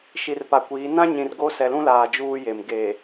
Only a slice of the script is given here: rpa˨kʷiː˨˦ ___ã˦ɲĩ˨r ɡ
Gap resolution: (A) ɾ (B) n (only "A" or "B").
B